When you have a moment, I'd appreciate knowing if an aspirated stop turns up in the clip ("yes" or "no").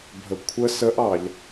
yes